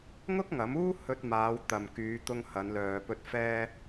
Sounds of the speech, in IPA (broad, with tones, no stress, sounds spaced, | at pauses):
ŋ ʊ˥ k̚ ŋ ɐ˨˥ m uː˥ h ɵ˧ t̚ m aː˨˧ w t̪ ɐ˨ m k yː˨˧ t̪ ʊ˧ ŋ h ɐ˨˧ n l œː˨ p ɵ˧ t̚ f ɛː˥